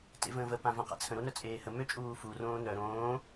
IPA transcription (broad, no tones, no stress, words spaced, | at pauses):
tḛvə̃ːvə pãvãqa̰t͡sʰə̃ ɾonœt͡sʼeːhə møt͡ʃʼuːfu rõːnœ ɾõː